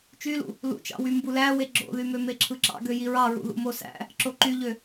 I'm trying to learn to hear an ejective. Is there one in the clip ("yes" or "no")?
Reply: no